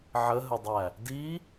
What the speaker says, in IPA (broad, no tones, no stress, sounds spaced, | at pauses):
ʕ ə ɦ ə dˤ æ | d i